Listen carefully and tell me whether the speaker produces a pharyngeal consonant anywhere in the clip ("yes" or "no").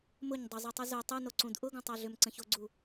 no